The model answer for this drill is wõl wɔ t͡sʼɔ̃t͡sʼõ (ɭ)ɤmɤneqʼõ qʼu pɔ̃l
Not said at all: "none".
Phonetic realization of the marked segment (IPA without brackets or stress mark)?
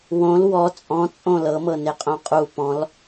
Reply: l